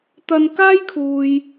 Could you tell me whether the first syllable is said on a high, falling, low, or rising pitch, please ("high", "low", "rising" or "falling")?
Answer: high